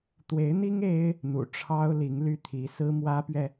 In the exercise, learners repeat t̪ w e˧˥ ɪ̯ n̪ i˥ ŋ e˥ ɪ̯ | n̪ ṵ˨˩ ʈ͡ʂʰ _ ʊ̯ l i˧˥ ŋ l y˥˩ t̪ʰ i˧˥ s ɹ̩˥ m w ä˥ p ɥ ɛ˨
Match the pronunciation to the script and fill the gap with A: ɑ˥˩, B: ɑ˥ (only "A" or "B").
B